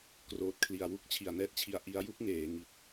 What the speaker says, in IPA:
k r oː˨˩ t̚ kʰ l i˨˩ a̯ w u˥˩ k̚ t͡ɕʰ i˨˩ a̯ n ɛː˦˥ t̚ t͡ɕʰ i˧ a̯ ʔ i˧ a̯ j u˥˩ k̚ ŋ eː˩˦ ŋ i˨˩ t̚

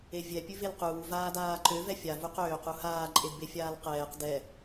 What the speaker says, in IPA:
e vʲ ɛ pʲ ʉ v e l q uː v aː d aː ǃ ø v ɛ fʲ a v u q øː q u h aː ǃʼ e d b e fʲ aː l q ɛː q d ɛ

